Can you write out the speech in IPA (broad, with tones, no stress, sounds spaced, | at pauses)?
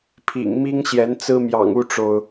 pʰ ḭ˨˩ ŋ m i˥ ŋ ɕ j ɛ˧˥ n t͡s ɹ̩˥ m j ɑ̰˨˩ ŋ u˥˩ ʈ͡ʂ o˩ ʊ̯